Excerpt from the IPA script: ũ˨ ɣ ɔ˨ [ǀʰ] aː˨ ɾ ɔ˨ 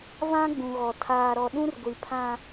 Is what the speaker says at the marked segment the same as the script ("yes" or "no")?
no